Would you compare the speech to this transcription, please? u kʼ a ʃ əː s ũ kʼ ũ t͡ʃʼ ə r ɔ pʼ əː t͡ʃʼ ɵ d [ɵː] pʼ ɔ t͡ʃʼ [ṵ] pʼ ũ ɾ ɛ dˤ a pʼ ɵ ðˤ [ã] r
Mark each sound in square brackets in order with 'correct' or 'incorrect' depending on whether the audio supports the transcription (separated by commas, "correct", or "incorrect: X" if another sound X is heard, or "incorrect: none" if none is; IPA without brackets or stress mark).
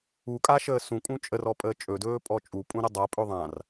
correct, incorrect: u, correct